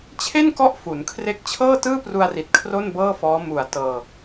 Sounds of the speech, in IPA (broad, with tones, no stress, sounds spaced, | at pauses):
t͡ɕʰ e˥˩ n k ɔ˦˥ ʔ f u˩˦ n kʰ r e˦˥ k̚ t͡ɕʰ ɤː˥˩ t ɯː˥˩ p r u˧ a̯ r i˨˩ t̚ kʰ r o˥˩ n b ɤː˥˩ f ɔː˦˥ m u˨˩ a̯ t ɤː˧